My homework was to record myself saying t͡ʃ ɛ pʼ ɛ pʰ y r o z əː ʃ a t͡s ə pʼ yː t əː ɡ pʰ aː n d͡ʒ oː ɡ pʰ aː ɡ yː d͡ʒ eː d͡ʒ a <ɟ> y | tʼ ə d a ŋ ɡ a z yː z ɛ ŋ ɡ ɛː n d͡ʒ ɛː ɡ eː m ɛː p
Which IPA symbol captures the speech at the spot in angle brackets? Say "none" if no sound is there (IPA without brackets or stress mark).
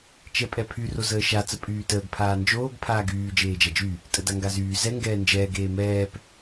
d͡ʒ